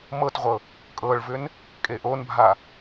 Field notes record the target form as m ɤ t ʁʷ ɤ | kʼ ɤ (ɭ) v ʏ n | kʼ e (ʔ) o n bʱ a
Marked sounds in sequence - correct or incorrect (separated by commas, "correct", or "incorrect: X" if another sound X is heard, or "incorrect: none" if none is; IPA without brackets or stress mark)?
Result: correct, correct